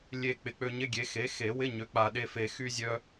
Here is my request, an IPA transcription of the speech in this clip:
lʲ e˨˩ k͡p ɪ˩˥ k͡p ø˧ ɲ ɪ˧˥˧ ɡʲ e˩˥ x e˩˥ x e˨˩˦ w ɪ˧˥˧ ɲ ø˩˥ k͡p a˨˩ ɗ e˧ f e˨˩˦ x y˧ zʲ œ˧

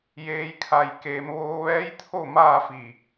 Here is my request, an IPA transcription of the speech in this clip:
j eː˩ j kʰ a˩ j k eː˩ m ʋ oː˧ ʋ ɛː˧˥ j t̪ʰ o˥˨ m aː˥˨ f i˧˩

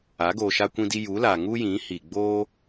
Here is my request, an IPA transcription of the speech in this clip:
a˨˦ ɡ oː˧ ʃ a˦ kʷ ĩ˦ d i˦ j u˨˦ l a˨ ŋ u˦ j ĩ˨˦ h i˨ ɡ͡b oː˦

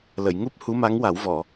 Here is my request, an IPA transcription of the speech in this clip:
l ə˨˩˨ j ŋ u˦˥ p̚ h u˧˥ m a˧˥ ŋ w a˨˩˦ w v ɔ˨˩˨

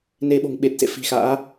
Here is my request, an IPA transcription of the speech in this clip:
n e˧ ɓ o̤˨˩ ŋ ɓ e˨˩ t̚ s ḛ˧˨ f i̤˨˩ x a̰ː˧˥

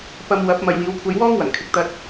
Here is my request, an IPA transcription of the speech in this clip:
p ɐ˧ m w ɐ˨˥ p̚ m ɐ˨ j w iː˨˧ w kʷʰ ɐ˧ j w ɔː˥ ŋ w ɐ˨˩ ŋ kʰ ɪ˨ k̚ t̪ ɐ˧ t̚

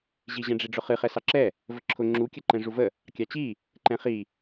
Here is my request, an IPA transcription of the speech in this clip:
ʑ i ʑ ɛ̃ ɖ͡ʐ i ɖ͡ʐ ʊ χ ɨ χ ɛ s ɑ ǁ ɛ | v ə ǁʰ ʊ ŋ͡ǁ u kʲ ə ǃ ɛ̃ ʐ u v ə | kʲ ɑ t͡ɕ i | ǃ ɛ̃ χ i

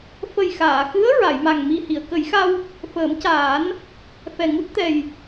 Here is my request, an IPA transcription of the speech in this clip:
f ə˨˩ j x aː˨˩˨ x ɨ˧˥ ə̯ ɹ a˨˩˨ j m a˨˩ ŋ m i˨˩ h i˨˩˨ ə̯ k ə˨˩˦ j x a˧ w | f əː˨˩˦ m c aː˨˩˦ n | f ɛ˨˩ ŋ u˦˥ t̚ t̪ ɛ˨˩ j

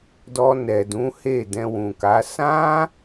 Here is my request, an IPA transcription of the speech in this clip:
d ɔ˧ n ɛ˨ d ũ˨˦ h e˦˨ d ɛ̃˧ w ũ˨ k a˨˦ s ã˦

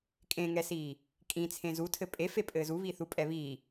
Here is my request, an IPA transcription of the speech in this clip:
kʼ ẽ ŋ ɛ s iː | kʼ ĩ t͡sʰ ẽ z u tʰ ɘ pʼ e f e pʼ ɘː z u β i θ u pʼ ɛ β iː

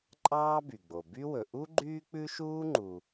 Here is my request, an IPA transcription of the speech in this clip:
ǃʼ ɑː˥ b y˩ ɡ͡b o˩ b y˥ w ɵ˩ ʔ u˥ ɡ͡ǃ yː˥ k͡p ʉ˥ ʃ uː˥ ŋ͡ǃ u˩

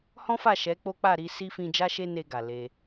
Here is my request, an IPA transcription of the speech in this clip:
h ɔ̃˦ f a˦˨ ʃ ɛ˨˦ k͡p o˦ k͡p a˦˨ ɾ i˨˦ s i˦ f ĩ˧ d͡ʒ a˦ ʃ e˦ n e˧ ɡ a˨ l e˧

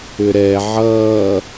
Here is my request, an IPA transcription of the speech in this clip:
ʏ ɾ ɛ ʕ ʌː

